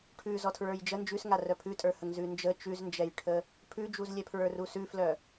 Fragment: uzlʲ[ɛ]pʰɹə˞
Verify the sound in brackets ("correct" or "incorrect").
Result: correct